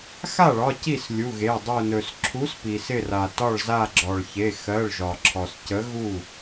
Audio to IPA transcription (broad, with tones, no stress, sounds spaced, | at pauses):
x a˥˩ ɭ ɒ˩˧˩ c i˥˩ s lʲ u˩˧˩ ɣ e˩˧˩ dˤ ɵ˧˩ n ɵ˩ s ǁʰ u˨˥ s p i˩ s ɪ˧˩ r a˩ t ɒ˧˩ ɭ z a˧˩ ɡ͡ǁ ɔ˩ ɭ ç e˩˧˩ x ɜ˩˧˩ ɭ ʒ ɒ˩ ǁʰ ɔ˩ s c ə˨˥ ɣ u˥˩